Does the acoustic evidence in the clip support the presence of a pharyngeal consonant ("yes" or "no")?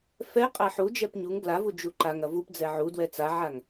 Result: yes